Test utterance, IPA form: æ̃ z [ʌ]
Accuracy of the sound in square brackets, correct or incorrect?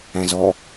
incorrect